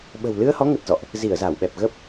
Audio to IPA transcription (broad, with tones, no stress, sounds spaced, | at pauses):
ɓ ə̤˨˩ w l ɨ˧ ə̯ h ɔ˨˦ ŋ ə˨˩ t̚ z ɔ̰˧˨ ʔ | z i˧˩ ə̯ z a˧˩ w ɓ ɛ˨˩ p̚ ɣ ə˦˥ p̚